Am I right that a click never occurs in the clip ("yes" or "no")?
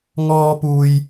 yes